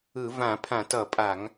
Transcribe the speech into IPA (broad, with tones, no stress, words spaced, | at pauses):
ɯ˧˩˧ vã˧˩˧pʰã˧˩˧tʌ˧˩˧pʼa˧˩˧ŋ